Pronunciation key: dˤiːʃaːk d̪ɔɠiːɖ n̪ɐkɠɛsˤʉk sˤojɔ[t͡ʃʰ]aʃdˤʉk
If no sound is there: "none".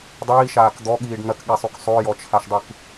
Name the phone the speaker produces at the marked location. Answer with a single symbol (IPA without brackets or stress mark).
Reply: t͡ʃʰ